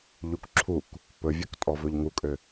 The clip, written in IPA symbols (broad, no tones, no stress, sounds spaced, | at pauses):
ʎ u k ǁʰ u k | p ɵ vʲ ɵ k tʼ ɔ v ɵ ʎ ŋ u kʼ ø